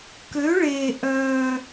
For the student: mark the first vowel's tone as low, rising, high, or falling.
rising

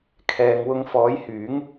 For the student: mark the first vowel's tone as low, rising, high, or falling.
low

